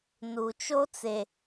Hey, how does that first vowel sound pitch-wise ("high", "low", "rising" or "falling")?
low